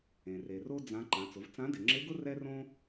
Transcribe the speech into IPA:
ẽ˩ r e˩ r o˥ d͡z ã˧˥ ǃ ã˩˧ t͡s ʊ˩˧ v t͡s ã˧˥ d ɪ˩ ŋ͡ǁ e˧˥ ɡ ʊ˥ r ɛ˥ r õ˥

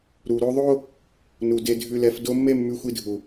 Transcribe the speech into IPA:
ɾ u˨ ɾ o˧ ðˤ o˦ | n u˨ d e˧ dʱ ʉ˧ l ɛ˧ f d o˧ mː e˦ mː ʉ˧ xʷ i˧ dʱ u˨

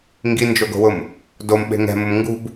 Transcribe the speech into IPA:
ŋ ɡ i n d͡ʒ o ɡ o̤ w ʊ m | d o m ɓ e̤ ŋ ɛ̤ m ʊ m ŋ ɡ ṳ b

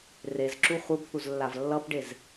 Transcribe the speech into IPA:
r e z ǁ u χʷ ɯ b θ u z lː a v lː ʌ p ɖ e z

